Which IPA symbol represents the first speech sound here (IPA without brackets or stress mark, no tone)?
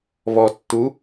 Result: β